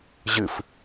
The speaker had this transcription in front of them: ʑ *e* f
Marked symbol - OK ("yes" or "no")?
no